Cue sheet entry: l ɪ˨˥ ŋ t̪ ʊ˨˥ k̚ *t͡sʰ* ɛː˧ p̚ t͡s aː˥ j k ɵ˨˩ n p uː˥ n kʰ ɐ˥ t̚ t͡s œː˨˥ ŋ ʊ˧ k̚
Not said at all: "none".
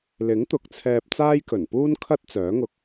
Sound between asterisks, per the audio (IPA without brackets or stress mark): t͡sʰ